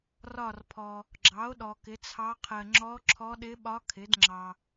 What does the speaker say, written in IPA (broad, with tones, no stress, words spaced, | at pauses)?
rɒ˦˨rpʰɔ˨ | ɡ͡ǁɑ˩˥o̯ ɗɔ˨kɪ˩˥t͡sʰɑ˧˥qʰɜ˨ ŋ͡ǁɔ˧˥ǁʰɔ˧˥ɗɪ˧˥ɓɒ˧˥ kʰɪ˩˥dŋ͡ǁɑ˨